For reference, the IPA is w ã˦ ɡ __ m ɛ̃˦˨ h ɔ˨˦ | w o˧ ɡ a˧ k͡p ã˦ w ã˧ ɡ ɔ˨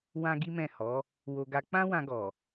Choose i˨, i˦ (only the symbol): i˦